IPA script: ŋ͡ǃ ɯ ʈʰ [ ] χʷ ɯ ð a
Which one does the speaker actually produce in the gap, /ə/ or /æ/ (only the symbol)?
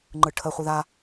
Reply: ə